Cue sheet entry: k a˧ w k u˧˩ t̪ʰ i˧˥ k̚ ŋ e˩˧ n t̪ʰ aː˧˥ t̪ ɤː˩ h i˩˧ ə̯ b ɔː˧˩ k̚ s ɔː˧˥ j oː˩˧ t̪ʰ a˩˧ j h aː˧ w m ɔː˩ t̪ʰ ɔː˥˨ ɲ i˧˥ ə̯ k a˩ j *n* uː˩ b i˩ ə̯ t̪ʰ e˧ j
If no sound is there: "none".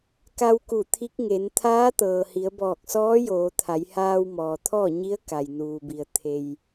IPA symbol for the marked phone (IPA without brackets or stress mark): n